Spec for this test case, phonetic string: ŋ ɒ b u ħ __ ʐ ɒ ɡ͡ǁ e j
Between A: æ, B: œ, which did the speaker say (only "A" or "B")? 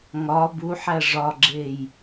A